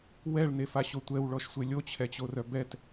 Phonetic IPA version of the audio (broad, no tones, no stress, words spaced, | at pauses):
wɛɭnefaɕo tʷɛwɭɔʃsʷe lʲot͡ɕʰɛt͡ɕorœ bɛt